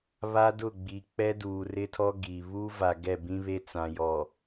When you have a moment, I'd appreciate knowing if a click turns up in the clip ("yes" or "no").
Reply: no